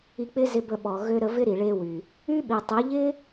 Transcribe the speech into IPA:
i˧k͡pɪ˦ zɪ˧bə˧ɓɔ˨ ɣø˧ɾə˧vɪ˦ ɾi˨ɭe˧wy˨ | y˦ɓi˨tˤe˨˦ ʎɪ˦

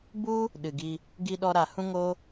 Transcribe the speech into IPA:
bu˦ | ɗɨ˨ɡi˧ | ɡi˧ɗɔ˧ɾa˨hũ˦ ŋo˦

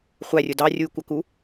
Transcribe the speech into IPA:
χʷærʲʊ dɑrʲujkʷɑku

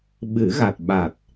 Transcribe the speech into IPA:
ɓɨ˨˩˦ɣa˨˩t̚ɓa˨˩t̚

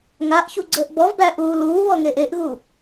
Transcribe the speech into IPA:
ŋaʔçu ɡ͡ǀəːʔbɔvbæ ʔuːluːβɔ ŋeʔeʔɣu

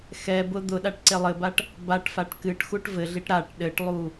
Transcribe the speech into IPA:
xɛbʊ d̪ʊɗaʈ ǀelˠɘbaʈ | baʈfaʈ kɨʈxuʈ vɘɮiʈ ɾaʈ ɗɘʈlˠu

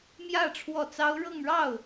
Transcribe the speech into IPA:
mjä˥˧ ʈ͡ʂʰwɔ˥˩t͡sɑ˥ʊ̯ ɻɤ˥˧ŋɻɑ˥˩ʊ̯

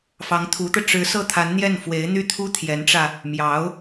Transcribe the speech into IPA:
fɑ˧˥ŋt̪ʰu˧˥t̪ɤ˧ ʈ͡ʂɻ̩˧˥sɤ˥˩t̪ʰa˧˥nn̪jɛ˥˩n fwe˧˥ɪ̯ n̪y˥˩t̪ʰu˥t̪ʰjɛ˧˥nʈ͡ʂä˧ | mjɑ˧˥ʊ̯

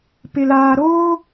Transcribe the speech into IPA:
pɪ˨laː˨ ɾoː˦

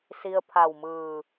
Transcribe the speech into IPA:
si˧ə̯pʰa˧˩wmɯː˧˩

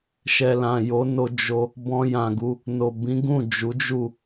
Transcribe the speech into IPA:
ʃɛ˨lã˨jo˨˦ no˧ d͡ʒo˧ | bɔ̃˧ jã˨ɡu˧ | no˨ bĩ˨˦ɡũ˦˨ d͡ʒu˨˦d͡ʒu˦˨

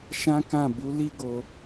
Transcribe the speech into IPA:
ʃã˦kã˦˨ bu˨˦li˦ɡo˧

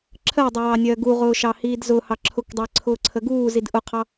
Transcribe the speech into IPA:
ǁʰɜwdˤəwɑnʲɜː ɡuʁʊːʃɑhiːd zʊhɑ ǁʰʊkdˤɜǀʰʊːǀʰə ɡuːzid ʔʊqʰɑ

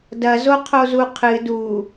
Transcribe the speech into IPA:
dɐzo qʰozuqʰɨ du

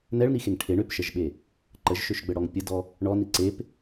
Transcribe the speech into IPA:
nɛɭnixeŋ ʈʰeɳ øpʃəʒɓe | ǃəʒʃøʃɡ͡bəɽɔŋ pʲədɔ | ɳɔni ǀep

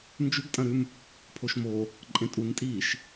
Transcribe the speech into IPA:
nd͡ʒʉɡtʼɐ̃ɾʉm | pʰoʃmo | ǃʼẽtʼuntʼiːʃ

